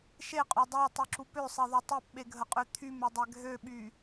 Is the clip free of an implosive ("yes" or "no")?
no